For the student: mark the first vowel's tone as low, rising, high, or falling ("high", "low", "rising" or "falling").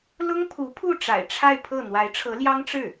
high